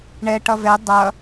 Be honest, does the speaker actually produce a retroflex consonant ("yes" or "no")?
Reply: yes